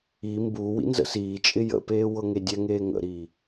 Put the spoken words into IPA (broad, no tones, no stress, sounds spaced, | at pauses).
i m b uː w ḭ n z ə̰ s iː t͡ʃʼ ɪ j ə̰ p eː w ɤ ŋ e dʲ ɛ ŋ eː ŋ ə̰ ɾ iː